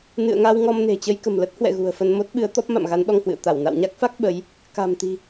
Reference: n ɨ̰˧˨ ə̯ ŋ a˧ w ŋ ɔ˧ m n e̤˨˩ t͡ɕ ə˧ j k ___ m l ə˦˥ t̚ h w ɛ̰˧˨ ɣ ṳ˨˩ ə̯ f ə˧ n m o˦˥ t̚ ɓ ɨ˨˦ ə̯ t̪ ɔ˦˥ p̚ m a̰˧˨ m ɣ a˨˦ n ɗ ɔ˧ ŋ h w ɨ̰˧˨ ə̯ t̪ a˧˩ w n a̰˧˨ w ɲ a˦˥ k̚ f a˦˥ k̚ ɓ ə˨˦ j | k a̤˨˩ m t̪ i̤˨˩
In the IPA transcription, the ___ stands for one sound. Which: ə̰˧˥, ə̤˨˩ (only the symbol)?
ə̤˨˩